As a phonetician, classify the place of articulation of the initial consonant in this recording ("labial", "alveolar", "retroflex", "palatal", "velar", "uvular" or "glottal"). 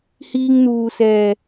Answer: glottal